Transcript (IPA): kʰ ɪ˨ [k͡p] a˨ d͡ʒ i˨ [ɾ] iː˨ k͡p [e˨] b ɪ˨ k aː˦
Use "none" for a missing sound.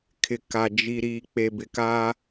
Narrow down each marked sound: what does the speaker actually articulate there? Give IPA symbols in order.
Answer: k, ɾ, e˨

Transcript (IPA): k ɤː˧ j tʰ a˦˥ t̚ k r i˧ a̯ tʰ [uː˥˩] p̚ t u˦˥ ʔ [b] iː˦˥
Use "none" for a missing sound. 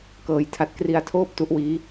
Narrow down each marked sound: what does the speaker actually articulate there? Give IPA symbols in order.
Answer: oː˥˩, w

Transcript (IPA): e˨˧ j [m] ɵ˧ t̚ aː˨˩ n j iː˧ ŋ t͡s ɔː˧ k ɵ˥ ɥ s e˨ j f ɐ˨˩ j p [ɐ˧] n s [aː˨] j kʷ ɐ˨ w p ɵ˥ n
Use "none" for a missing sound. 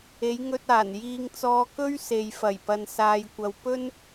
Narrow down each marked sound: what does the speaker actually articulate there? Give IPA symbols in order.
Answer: ŋ, ɐ˨, aː˨

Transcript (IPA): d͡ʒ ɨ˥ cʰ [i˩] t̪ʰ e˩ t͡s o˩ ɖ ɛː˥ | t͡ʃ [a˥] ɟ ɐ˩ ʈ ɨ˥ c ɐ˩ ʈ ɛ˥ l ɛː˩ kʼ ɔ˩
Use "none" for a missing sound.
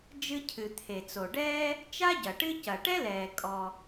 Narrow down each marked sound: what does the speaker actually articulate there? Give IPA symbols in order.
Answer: ɨ˩, a˥

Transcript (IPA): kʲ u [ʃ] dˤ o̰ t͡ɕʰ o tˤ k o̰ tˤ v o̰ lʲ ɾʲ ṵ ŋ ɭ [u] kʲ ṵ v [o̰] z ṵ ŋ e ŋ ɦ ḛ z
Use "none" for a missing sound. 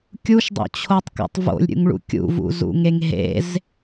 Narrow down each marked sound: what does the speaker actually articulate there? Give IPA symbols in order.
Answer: ʃ, ṵ, ṵ

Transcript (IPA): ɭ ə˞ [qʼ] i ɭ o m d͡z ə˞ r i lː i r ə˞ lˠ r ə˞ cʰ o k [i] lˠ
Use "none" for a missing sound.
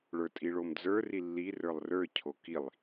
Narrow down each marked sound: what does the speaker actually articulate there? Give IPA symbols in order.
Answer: tʼ, i

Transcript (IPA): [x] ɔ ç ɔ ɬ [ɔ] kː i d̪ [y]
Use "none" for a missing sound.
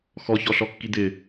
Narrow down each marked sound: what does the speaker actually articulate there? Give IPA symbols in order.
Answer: x, ɔ, ɪ

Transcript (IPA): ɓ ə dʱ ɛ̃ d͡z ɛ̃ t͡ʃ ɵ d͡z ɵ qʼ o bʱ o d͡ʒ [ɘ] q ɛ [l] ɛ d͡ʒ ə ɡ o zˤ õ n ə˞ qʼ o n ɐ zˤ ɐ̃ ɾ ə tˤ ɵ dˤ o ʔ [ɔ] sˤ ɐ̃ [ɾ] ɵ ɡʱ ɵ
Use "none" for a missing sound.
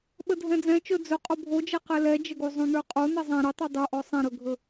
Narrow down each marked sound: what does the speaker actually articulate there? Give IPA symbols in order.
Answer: ɛ, l, ɔ, ɾ

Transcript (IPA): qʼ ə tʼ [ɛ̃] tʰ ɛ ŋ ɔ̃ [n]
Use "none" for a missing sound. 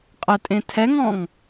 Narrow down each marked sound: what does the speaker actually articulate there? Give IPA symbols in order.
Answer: ẽ, ŋ

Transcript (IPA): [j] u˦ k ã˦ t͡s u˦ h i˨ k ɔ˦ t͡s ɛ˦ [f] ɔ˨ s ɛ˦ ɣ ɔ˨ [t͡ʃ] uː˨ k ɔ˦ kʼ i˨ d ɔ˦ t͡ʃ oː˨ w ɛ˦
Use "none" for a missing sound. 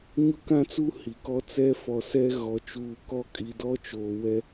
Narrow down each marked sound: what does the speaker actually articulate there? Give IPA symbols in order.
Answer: ɲ, f, t͡ʃ

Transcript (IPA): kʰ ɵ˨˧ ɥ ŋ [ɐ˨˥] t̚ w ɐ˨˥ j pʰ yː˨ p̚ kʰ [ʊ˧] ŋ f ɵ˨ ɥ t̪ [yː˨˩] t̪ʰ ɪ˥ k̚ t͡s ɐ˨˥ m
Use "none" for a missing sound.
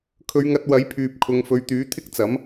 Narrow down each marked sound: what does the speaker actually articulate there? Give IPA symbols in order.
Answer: ɐ˧, ʊ˨˧, yː˨˥

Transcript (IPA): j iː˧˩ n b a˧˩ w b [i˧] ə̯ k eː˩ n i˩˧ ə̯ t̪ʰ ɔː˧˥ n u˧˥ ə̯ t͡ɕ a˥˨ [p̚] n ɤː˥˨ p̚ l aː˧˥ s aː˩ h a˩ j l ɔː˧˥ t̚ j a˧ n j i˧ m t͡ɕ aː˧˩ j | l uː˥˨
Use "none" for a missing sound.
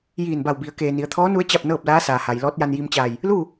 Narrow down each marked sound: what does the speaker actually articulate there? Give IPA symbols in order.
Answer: i˩˧, p̚

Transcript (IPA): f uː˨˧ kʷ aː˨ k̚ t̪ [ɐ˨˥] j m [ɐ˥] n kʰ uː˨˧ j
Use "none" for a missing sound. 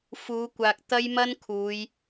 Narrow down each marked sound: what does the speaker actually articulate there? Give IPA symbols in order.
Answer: ɐ˥, ɐ˥

